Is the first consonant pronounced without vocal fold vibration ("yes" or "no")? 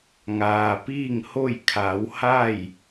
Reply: no